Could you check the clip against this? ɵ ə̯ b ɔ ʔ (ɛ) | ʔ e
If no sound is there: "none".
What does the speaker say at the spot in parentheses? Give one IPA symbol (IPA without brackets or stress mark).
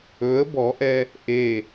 ɛ